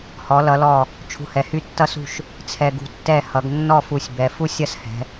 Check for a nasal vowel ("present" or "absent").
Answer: absent